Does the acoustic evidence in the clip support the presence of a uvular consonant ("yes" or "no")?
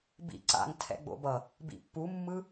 no